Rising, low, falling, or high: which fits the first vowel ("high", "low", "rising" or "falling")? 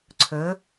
rising